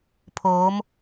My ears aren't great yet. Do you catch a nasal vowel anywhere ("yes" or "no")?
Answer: no